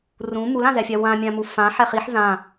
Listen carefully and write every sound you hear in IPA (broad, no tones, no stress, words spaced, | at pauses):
rũ mulãzɛfʲa wãmʲãmu fãħɛχ iħ zã